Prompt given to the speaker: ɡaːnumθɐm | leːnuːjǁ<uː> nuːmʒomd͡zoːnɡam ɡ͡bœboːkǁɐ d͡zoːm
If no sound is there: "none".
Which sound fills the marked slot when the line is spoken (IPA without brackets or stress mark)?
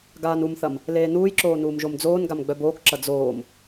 oː